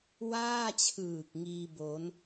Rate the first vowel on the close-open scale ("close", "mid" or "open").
open